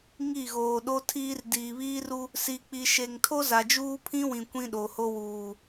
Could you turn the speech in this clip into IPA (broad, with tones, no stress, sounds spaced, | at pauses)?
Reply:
ŋ i˦˨ ɣ oː˨ ɗ o˦ tʰ iː˦ r d iː˨ β iː˦ r u˦ | s i˨ k͡p i˨ ʃ e˨ ŋ tʰ o˦ z a˨ d͡ʒ uː˦ pʰ ĩ˦ w ĩ˨ kʷ ĩ˦ ɗ o˨ h o˦ w uː˨